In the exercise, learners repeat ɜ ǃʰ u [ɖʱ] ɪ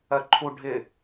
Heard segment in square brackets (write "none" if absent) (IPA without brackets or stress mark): ɖʱ